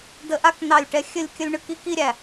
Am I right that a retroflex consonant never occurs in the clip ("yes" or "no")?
no